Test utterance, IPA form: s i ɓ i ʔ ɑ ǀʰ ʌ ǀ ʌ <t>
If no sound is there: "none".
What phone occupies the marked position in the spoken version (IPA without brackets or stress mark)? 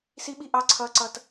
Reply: t